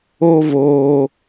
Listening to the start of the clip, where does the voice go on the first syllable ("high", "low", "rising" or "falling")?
high